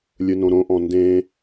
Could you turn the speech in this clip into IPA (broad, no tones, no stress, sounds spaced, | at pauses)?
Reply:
lʲ ɯ n õ ɾ õ ʔ ɔ̃ n d ẽ